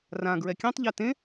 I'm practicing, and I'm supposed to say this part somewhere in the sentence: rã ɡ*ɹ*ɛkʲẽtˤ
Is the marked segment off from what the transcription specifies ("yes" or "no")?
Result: no